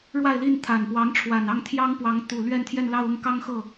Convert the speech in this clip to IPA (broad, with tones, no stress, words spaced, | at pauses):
ɻwa˥˧ɪ̯li˥˩nt̪ʰa˨˩npwɑ˧˥ŋ ʈ͡ʂʰwa˨˩nɑ˥˩ŋt̪ʰjɑ˥ŋpwɑ˧˥ŋ t̪u˨˩ lɥɛ˥˧nt̪ʰjɛ˥˧nlɑ˥˧ʊ̯ ʊ˥˩ŋkɑ˥ŋxɤ˥˩